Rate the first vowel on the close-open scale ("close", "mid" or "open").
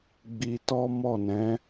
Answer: close